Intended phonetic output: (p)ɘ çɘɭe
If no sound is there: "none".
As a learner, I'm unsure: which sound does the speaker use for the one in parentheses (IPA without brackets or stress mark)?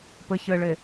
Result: p